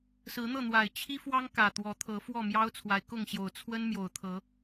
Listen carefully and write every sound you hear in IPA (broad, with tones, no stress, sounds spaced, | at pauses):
s ɹ̩˨˦ n̪ ɤ˥˨ n̪ w a˨˩ ɪ̯ t͡ɕʰ i˦ f w ɑ˦ ŋ k ä˨˩ t̪ w ɔ˨˦ t̪ʰ ɤ˨˦ f w ɔ˥˨ m j ɑ˦ ʊ̯ t͡sʰ w a˨˦ ɪ̯ k ʊ˥˨ ŋ ɕ j o˨˩ ʊ̯ t͡sʰ w ə˦ n m j o˨˩ ʊ̯ t̪ʰ ɤ˨˦